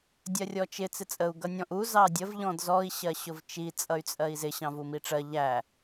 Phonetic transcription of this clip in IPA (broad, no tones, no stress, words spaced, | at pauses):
dʲɜrʲɔt͡ʃɪ t͡sɪt͡sʼəu̯ ɡʌnʲɔ̃ʔu zɑdʲəv ʎɔ̃dzɔi̯ ɕɜɕʊvt͡ʃi t͡sʼʌy̯t͡sʼɜi̯zɪ ɕɑ̃vumiʈ͡ʂɜ ʎæ